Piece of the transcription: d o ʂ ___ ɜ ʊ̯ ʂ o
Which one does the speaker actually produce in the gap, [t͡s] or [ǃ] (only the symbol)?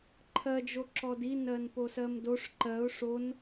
ǃ